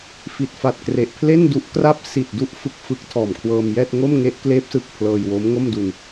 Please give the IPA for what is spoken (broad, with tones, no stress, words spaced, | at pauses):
fi˨˩t̚fa˨˩t̚kre˨˩ʔ pʰle˥˩ndu˦˥ʔkra˥˩p̚ si˨˩t̚du˦˥ʔ fɯ˦˥k̚ fɯ˦˥k̚ tʰɔː˨˩mkʰwɤː˧mjɛː˥˩t̚ ŋo˥˩mŋe˦˥ʔkleː˦˥p̚sɯ˨˩k̚ pʰlɤː˧jwo˦˥mŋo˥˩mdu˧n